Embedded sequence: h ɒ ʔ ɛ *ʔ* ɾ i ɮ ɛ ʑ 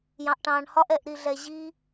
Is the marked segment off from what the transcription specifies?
no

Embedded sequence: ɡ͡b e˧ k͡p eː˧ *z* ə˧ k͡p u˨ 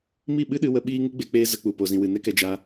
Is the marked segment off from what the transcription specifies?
no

